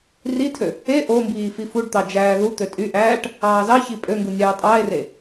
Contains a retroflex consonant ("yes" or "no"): yes